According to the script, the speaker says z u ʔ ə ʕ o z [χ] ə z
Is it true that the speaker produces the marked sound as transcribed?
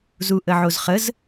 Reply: yes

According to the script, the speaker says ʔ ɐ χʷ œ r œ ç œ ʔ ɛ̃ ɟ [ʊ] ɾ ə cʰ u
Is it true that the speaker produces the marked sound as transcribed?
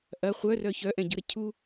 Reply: yes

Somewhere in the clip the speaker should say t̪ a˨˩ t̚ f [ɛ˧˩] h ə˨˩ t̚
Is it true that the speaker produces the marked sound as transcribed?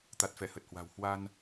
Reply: yes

